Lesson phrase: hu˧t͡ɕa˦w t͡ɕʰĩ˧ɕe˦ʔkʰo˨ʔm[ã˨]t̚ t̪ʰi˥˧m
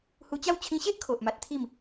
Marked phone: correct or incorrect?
incorrect